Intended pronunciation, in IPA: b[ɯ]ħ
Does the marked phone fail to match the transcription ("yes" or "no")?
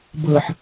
yes